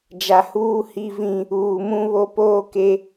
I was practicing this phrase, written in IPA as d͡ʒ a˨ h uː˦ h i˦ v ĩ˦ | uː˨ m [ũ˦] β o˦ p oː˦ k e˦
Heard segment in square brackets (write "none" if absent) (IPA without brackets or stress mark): ũ˦